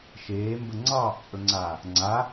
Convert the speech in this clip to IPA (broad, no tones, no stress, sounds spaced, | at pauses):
ʃ eː m b ə ŋ͡ǀ ɑː ʔ t͡sʼ ɵ ŋ͡ǀ aː | ŋ͡ǀ a